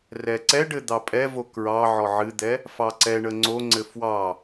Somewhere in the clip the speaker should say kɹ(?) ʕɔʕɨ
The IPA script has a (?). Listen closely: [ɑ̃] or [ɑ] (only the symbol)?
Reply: ɑ